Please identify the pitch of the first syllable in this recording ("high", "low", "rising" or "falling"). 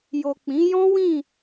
low